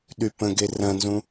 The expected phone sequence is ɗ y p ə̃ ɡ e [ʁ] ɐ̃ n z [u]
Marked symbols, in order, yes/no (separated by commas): no, no